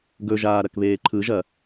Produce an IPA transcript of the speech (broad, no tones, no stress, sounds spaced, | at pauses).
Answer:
ɡ ɵ ʒ aː ɾ ɐ k β eː ǃʰ ɯ ʒ ɐ